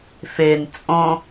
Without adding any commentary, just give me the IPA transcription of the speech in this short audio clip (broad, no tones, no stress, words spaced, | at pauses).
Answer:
fen t͡sʼõ